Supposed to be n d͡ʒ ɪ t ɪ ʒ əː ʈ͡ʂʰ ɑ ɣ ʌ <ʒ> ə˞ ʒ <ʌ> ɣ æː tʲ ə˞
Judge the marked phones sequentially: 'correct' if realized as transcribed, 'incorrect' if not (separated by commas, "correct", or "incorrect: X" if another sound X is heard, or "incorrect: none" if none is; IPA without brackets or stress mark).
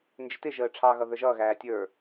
incorrect: ð, incorrect: ʌː